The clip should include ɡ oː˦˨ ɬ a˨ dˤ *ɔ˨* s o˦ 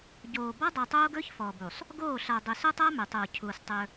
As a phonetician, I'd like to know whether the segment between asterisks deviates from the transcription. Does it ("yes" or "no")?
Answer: yes